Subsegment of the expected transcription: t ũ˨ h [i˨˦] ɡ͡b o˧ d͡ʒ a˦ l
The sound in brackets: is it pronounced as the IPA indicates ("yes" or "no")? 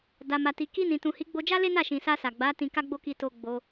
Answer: yes